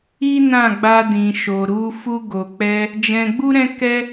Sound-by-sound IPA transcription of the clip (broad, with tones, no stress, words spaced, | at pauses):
i˦ nã˦˨ɡ͡ba˧ dĩ˨ʃo˨ɾu˧ fu˧ɡo˨k͡pɛ˧ | d͡ʒɛ̃˧ɡ͡bu˦ ɾɛ̃˦kɛ˦